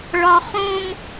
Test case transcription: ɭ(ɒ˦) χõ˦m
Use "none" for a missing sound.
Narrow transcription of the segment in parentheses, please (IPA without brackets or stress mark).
ɒ˦